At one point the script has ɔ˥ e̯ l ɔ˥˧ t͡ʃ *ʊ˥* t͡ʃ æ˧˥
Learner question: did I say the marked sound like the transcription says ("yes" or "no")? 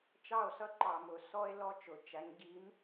no